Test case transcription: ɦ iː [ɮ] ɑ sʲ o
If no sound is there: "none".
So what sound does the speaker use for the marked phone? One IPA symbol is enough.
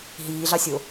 ɮ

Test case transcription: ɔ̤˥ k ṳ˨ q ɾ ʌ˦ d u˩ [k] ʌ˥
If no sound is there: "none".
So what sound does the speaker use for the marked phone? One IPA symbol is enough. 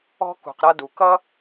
k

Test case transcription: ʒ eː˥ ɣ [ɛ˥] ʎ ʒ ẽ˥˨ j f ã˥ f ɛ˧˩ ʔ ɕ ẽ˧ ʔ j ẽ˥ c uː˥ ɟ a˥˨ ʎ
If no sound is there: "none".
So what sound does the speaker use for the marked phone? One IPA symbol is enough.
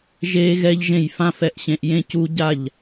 ɛ˥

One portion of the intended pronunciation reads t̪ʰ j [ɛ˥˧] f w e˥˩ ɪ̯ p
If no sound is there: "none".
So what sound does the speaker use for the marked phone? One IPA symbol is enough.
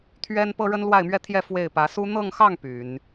ɛ˥˧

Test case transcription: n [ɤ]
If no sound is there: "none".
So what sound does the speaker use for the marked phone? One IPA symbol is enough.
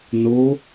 o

